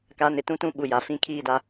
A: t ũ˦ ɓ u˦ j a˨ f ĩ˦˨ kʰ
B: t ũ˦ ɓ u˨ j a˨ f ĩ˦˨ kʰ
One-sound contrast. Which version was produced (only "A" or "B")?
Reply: B